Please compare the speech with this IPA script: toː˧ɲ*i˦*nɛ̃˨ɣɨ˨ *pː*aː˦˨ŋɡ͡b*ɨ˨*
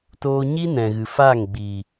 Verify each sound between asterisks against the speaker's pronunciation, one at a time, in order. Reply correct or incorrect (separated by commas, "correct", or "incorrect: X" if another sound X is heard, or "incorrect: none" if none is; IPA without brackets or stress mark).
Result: correct, incorrect: f, incorrect: i˨